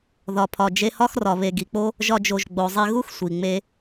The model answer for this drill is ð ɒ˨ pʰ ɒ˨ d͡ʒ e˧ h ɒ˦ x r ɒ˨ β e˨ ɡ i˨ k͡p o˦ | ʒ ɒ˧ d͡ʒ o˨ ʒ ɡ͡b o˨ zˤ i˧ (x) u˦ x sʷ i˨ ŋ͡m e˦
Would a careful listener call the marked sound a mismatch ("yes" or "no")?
yes